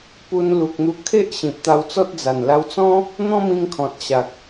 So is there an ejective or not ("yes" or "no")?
no